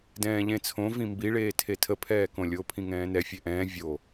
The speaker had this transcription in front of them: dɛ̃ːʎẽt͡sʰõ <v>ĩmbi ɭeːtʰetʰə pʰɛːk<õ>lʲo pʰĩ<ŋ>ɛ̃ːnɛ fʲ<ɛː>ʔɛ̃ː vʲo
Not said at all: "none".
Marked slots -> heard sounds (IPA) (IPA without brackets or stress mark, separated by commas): v, õ, ŋ, ɛ